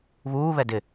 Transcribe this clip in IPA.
β uː β ɛ d ɪ

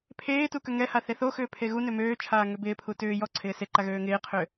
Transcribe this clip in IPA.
pʰ eː t u k ø ŋ ɛ h a θ e θ o x ʏː pʰ e ɣ u n ø m øː t͡ʃʰ aː ŋ ø b ɪː pʰ u t ʏː j ɔ ǀʰ ɪː s e ǃ a ɣ øː ŋ ɪː qʰ ʏː

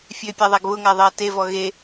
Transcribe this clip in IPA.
fʲ ø pʲ a ðˤ a ɡ β ʊ ŋ a ðˤ ɜ t e v ɔ ɣ e

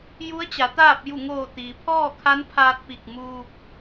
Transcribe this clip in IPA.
j u˧˥ ə̯ t͡ɕ a˩˧ t̪ aː˥˨ p̚ j u˧˩ ŋ oː˧˩ t̪ iː˩ pʰ ɔː˥˨ kʰ a˧˥ n pʰ aː˧ t̚ p i˧˩ k̚ m uː˧ p̚

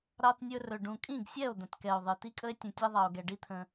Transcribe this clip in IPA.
ɾ ɑ˧ t nʲ ɵ˧ r ɵ˨ ɖ ũ˨ kʼ ĩ˦˨ ɡ sʲ ɛ˦˨ o̯ d̪ ə̃˨ t k ɛ˨ o̯ ðˤ ɨ˨ t i˦ kʼ ə˦ e̯ tʲ ə̃˧ tʲ ɛ˦ ðˤ ɑ˧ o̯ ɡ ɛ˧ ɖ i˦ t̪ʰ ə̃˧

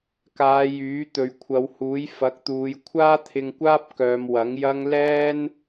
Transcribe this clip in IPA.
k aː˨˧ j yː˨˥ t̪ ɵ˨ ɥ kʷʰ ɐ˨˧ w h uː˨˥ j f ɐ˨˥ k̚ t̪ uː˨˧ j kʷʰ aː˥ t̪ʰ ɪ˧ ŋ kʷ aː˥ p̚ k œː˨˧ m w ɐ˨˥ ŋ j ɐ˥ ŋ l ɛː˥ n

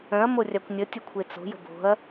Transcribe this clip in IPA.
œ̃ ɐ̯ m o rʲ a kʷ nʲ ə tʲ ə kʷʰ e t͡s o̤ j ə̤ b o̤ ɐ̯

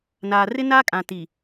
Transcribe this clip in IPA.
n aː˨ r ɪ˦ n aː˦ kʼ ã˨ t i˨

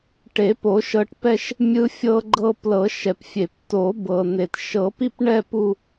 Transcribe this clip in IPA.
ʈ e˨˩˦ p o˨˩˦ ʃ ɤ˧ ʈ p ɛ˥˧ ʃ | mʲ ɯ˧ fʲ ɤ˧ ɡ͡ǃ ɤ˧ p l ɤ˨˩˦ ʃ ɛ˩ p fʲ e˩ p t o˨˩˦ b ɤ˩ n e˩ t ʃ ɤ˨˩˦ p i˥˧ p ɳ ɛ˥˧ p u˥˧

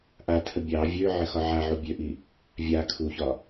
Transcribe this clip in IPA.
ʔ a tʰ ə bʲ ɑ vʲ ø ʕ ə x ɒ ʕ a ʕ u bʲ ø ʔ i | vʲ a kʰ u ç ɒ

